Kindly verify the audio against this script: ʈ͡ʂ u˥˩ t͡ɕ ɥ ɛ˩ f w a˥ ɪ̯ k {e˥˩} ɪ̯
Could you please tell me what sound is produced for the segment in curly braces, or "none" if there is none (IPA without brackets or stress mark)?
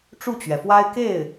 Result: e˥˩